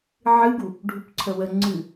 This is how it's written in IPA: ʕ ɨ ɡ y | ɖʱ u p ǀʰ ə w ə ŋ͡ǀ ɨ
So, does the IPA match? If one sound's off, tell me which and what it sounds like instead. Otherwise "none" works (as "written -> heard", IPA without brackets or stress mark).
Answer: y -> u